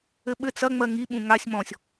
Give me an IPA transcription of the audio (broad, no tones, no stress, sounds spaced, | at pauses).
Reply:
ɘ ɓ ɘ t͡s ɐ ŋ͡m ɜ ŋ i ɓ ũ ŋ a sʲ m ɔ̃ sʲ